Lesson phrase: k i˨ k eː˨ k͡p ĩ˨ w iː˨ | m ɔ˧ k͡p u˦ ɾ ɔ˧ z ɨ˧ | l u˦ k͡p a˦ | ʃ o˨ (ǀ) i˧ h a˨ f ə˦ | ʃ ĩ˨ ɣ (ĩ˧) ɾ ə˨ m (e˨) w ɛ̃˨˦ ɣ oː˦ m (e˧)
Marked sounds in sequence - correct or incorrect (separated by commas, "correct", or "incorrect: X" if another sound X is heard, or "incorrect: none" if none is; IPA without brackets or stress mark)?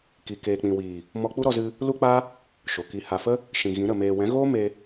incorrect: k, incorrect: ĩ˨˦, incorrect: eː˨, correct